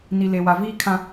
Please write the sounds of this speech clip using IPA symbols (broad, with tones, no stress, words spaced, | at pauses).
ni˨le˨ wa˨viː˦kʰã˦